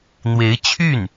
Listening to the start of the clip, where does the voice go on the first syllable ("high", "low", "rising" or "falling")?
rising